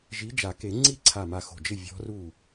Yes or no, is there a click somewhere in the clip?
yes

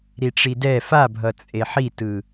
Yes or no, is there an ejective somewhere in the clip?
yes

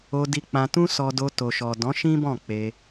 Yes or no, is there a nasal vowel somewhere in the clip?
yes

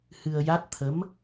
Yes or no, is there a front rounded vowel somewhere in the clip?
no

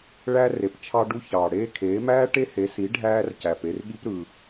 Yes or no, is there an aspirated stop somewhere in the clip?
yes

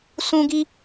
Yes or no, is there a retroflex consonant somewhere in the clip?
no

